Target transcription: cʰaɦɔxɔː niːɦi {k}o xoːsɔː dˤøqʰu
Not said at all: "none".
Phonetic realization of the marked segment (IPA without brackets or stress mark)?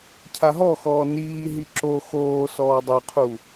ǁ